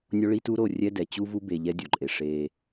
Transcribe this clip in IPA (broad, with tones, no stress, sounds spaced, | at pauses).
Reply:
nʲ o˦ ɭ i˦ t u˦ ɾ o˦˨ rʲ ɛ˦ d ɛ˨ t͡ɕ u˦ v u˦ b e˨ ʎ ɛ˦ dʲ o˨ ǃʼ e˨ ʂ e˦